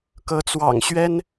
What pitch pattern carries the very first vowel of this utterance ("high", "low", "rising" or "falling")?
rising